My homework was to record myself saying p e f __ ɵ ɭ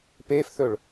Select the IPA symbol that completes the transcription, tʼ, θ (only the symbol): θ